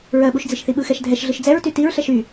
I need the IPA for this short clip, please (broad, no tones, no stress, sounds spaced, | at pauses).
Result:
ɹ ɜ ɓ u ʃ d͡z i ʃ θ i ɓ ɯ x ɛ ʃ dʱ ɛ ʃ ɮ ɯ ʃ d͡z ɛ ɹ t y t i ɹ ɬ ɛ ʃ y